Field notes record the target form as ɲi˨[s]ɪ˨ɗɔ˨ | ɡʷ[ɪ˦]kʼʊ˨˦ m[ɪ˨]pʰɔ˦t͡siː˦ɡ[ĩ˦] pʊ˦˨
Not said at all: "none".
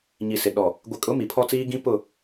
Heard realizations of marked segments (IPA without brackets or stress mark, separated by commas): s, ɪ˨, i˨, ĩ˦